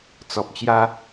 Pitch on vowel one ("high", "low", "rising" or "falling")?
low